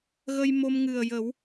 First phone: ɣ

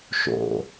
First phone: ʃ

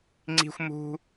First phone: ŋ͡ǀ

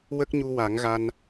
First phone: w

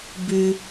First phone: b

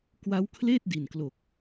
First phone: k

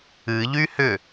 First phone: ɨ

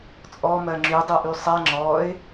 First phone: t͡sʼ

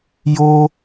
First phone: j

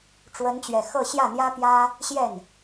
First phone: ʈ͡ʂ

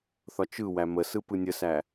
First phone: θ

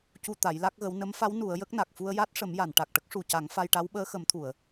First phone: c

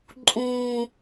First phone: ǃʼ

